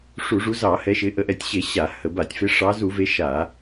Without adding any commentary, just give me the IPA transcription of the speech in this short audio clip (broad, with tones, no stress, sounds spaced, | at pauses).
ʂ u˧˩˧ ʐ u˨˦ z ɑ˧˩˧ h ɛ˨˦ ʃ ɪ˨˦ ʔ ə˧˩˧ ʔ ɛ˧˩˧ tʲ ɕ e˧˩˧ ɕ a˧˩˧ h ə˧˩˧ b a˧˩˧ tʲ f e˨˦ ʂ ɑ˨˦ z u˧˩˧ v e˨˦ ʃ a˧˩˧